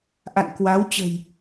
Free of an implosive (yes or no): yes